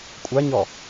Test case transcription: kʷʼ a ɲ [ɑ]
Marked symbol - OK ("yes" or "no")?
no